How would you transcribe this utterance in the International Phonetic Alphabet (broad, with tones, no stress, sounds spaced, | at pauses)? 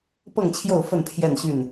p ɤ˥˨ ŋ t͡ɕʰ j o˥˨ ʊ̯ f ə˥˨ n pʰ j ɛ˥˨ n ɕ y˥˨ n